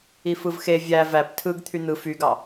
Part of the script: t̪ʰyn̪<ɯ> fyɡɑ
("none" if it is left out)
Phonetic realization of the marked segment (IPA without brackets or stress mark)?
ɯ